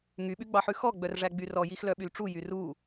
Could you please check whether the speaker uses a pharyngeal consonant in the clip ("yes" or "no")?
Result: yes